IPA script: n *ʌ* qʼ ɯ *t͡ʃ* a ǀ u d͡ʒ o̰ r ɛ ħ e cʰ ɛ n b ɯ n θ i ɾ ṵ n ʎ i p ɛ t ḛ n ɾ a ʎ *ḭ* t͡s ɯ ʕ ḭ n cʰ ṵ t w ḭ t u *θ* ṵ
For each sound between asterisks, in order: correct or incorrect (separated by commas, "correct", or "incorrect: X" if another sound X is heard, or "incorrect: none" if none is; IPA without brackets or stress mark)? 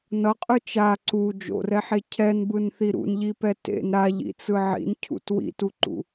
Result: correct, correct, correct, incorrect: ǃ